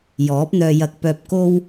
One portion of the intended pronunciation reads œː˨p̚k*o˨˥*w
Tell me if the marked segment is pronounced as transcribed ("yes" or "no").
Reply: no